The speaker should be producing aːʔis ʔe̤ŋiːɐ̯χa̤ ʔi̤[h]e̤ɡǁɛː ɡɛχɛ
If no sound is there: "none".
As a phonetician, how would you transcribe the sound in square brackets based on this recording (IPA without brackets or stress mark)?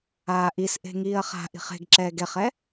χ